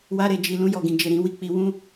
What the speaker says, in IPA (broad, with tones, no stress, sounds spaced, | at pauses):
w a˧ ɾ e˨ d͡ʒ i˨ l ũ˧ j ɔ˨ ɡ ĩ˨ d͡ʒ e˨ ɾ ĩ˨˦ w i˦˨ k͡p i˧ w ũ˦